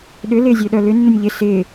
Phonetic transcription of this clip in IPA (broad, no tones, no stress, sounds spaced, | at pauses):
ɗ ʏ l ɪː zʲ ø ɗ œ l ʏ nː ʊ nʲ ʎ ɪ s ɪː